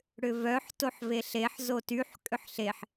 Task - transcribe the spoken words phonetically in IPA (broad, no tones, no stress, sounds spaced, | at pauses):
ɽ ʏ v œ ħ t o ħ v e ɬ e ħ z o t y ħ kʼ ʏ ħ ɬ e ħ